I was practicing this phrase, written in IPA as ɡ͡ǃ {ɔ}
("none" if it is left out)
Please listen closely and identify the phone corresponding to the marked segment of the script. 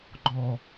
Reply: ɔ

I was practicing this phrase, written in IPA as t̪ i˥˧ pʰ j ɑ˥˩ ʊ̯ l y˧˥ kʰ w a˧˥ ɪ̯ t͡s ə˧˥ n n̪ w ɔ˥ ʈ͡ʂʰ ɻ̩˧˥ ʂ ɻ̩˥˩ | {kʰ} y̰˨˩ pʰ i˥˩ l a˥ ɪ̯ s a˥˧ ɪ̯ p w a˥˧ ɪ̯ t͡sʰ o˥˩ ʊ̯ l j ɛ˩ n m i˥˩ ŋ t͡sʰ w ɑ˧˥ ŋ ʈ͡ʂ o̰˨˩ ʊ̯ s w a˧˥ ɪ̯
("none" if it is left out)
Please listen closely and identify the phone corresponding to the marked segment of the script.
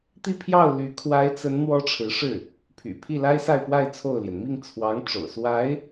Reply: pʰ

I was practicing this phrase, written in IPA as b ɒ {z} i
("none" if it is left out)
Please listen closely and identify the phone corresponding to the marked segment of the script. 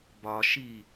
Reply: ʃ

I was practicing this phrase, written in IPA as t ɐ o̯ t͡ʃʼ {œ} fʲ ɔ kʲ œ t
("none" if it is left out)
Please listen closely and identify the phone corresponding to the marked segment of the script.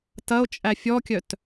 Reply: æ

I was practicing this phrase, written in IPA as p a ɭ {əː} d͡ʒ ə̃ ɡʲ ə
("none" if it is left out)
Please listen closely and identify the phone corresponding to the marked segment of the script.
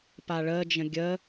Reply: əː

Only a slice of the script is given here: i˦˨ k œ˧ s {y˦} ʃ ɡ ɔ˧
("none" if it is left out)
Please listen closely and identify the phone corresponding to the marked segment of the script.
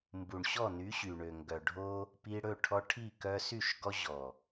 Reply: y˦˨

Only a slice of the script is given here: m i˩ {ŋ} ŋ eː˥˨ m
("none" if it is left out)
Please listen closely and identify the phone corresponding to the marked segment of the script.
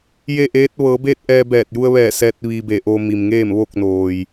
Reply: m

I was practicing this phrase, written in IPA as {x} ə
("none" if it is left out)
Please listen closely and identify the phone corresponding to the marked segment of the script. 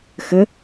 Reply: x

